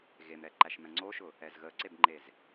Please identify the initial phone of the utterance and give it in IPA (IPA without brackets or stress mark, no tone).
ɣ